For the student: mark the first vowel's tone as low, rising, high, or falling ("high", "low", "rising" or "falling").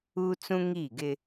high